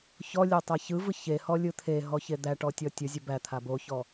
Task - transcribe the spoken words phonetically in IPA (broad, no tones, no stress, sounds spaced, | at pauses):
ç ɔ lʲ e tˤ a ç ɯ v ɯ ç e h ɔ lʲ ɯ t̪ʰ e ɦ ɔ ç e d̪ æ ʈ ɔ tʲ ɔ tʲ ʊ zʲ ʊ b æ t̪ʰ a b o ç ɔ